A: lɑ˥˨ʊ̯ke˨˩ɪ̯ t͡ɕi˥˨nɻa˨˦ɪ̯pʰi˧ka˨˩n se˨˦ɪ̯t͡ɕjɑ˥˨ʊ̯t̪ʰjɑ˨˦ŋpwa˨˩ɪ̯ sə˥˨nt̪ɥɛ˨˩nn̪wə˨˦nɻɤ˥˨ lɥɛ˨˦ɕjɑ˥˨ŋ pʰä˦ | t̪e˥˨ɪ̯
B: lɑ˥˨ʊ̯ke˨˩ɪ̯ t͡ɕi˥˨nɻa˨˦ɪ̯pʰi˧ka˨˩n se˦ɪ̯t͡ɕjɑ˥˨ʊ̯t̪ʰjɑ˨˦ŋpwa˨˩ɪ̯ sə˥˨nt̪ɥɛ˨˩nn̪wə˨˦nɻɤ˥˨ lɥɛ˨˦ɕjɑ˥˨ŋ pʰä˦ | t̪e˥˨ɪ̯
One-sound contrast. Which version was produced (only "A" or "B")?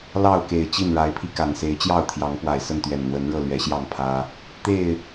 A